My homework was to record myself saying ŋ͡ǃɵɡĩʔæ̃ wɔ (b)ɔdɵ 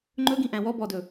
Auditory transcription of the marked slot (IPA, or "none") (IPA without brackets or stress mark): b